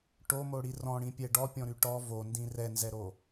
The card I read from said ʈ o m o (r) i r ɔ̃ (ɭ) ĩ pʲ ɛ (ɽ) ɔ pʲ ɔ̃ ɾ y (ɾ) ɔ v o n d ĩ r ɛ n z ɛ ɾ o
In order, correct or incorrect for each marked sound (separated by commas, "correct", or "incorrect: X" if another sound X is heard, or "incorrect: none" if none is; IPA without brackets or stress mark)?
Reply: incorrect: ɽ, incorrect: ɽ, incorrect: ɖ, incorrect: ʈ